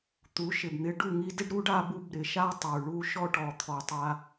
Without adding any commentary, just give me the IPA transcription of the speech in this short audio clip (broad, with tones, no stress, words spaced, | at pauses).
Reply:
t̪u˨˦ ʃɪ˨bn̪ɪ˧ ɖu˦˨ŋi˧dɪ˦ɖɾu˦ɖ a˧bu˧bɾɪ˨ʃa˦ tˤu˨ɭu˦ʃɔ˦ ʈɔ˨t̪ʰɔ˨tˤa˧